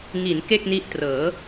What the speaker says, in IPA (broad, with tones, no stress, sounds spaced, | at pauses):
ŋ i˩˦ n k e˥˩ k̚ n i˦˥ ʔ t r ɤː˩˦